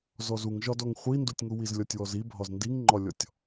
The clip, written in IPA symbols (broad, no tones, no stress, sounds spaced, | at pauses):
z ɔ z u ŋ ʒ ɒ d ɔ ŋ χʷ i n d u tʲ ŋ u w i z lʲ ɔ tʲ w ɔ z i bʱ ɒ z n d i ŋ ŋ͡ǃ ɒ lʲ ɔ tʲ